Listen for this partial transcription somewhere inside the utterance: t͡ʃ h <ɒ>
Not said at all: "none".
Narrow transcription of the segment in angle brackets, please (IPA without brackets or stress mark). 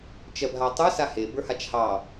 ɑ